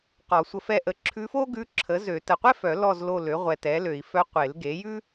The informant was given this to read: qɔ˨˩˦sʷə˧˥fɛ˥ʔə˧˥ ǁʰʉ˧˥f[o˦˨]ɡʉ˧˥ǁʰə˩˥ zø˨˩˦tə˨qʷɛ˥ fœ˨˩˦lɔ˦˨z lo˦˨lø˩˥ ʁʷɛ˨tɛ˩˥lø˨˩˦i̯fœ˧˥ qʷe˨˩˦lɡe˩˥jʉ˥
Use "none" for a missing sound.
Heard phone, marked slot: o˥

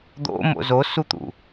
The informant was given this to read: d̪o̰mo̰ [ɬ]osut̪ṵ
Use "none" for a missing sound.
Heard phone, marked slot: z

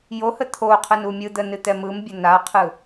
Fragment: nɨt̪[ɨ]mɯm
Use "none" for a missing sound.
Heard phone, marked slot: ɛ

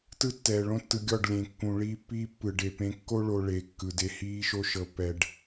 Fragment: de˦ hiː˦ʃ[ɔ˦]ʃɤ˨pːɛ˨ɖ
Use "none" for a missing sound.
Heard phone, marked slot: o˦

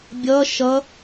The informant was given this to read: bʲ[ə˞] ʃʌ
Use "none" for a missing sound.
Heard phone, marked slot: ʌ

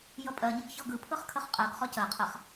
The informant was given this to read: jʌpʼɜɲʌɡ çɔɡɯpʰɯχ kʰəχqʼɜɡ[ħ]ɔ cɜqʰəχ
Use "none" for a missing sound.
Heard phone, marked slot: χ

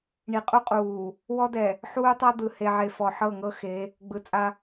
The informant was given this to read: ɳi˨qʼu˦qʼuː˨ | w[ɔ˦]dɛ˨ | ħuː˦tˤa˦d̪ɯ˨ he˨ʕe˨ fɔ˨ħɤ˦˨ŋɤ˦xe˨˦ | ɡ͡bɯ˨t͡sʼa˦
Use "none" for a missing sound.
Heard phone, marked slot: ɔ˦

